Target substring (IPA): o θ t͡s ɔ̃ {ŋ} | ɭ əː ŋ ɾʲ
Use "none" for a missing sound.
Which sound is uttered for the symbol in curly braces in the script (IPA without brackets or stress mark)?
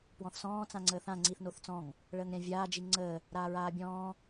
ŋ